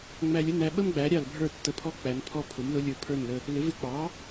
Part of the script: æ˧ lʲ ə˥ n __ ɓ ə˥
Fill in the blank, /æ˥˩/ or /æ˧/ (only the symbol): æ˧